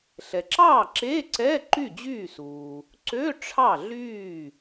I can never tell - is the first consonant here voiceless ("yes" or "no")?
yes